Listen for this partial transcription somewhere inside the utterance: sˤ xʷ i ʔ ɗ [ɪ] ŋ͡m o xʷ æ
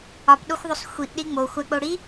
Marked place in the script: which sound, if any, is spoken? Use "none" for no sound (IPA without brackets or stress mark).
i